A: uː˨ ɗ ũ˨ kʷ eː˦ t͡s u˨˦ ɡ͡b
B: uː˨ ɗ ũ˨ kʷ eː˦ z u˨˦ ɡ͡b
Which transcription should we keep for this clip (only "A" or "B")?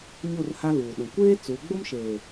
A